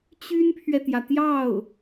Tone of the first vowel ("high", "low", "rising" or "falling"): high